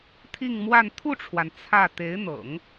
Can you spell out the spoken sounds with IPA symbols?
t̪ʰi˥˧ŋmwa˥˧n t̪ʰu˥˩ʈ͡ʂʰwa˩n t͡sʰä˥˩ t̪e˧˥ɪ̯n̪ɤ̰˨˩˦ŋ

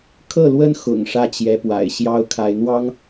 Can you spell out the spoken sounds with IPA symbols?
kʰɤ˥˩lwə˥nxʊ̰˨˩ŋ ʂä˥˩t͡ɕjɛ˧˥pwa̰˨˩ɪ̯ ɕjɑ˥ʊ̯kʰa˧˥ɪ̯n̪wɑ˥ŋ

